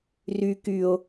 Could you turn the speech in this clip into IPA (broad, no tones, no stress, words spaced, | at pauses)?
ry kyo̯